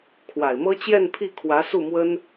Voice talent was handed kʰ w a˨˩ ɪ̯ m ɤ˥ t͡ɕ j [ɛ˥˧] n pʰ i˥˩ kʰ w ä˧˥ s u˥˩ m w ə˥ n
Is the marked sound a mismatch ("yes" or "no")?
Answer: no